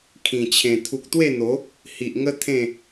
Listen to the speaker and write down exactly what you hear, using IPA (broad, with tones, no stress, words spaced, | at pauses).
kʰĩ˨˩t͡ɕʰẽ˨˩ t̪ʰu˨k̚t̪we˥˧n̪o˨˦ | hi˨ʔŋə˦ t̪ʰẽ˥˧